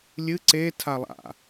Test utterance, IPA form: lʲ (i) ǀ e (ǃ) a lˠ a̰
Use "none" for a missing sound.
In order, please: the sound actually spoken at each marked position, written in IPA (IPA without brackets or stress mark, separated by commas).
ɨ, tʰ